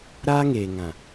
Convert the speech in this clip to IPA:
ɾaː˦ŋeː˨ŋã˨

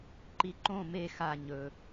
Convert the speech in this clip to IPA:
ǃiǃõ me xa ɲɵ

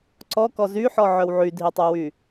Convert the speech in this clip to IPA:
ǀɔkɔ zyħɔʕœw ʕydʱitˤowy

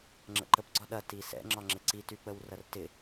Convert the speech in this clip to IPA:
ŋ͡ǁə̰ǃəp ɡ͡ǀɒɗɐ tisɛ̰ ŋ͡ǁɒŋ͡ǁɪǀi tyk͡pəwrɐrtɪ

